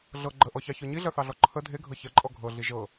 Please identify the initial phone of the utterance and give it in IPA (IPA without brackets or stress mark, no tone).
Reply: ɮ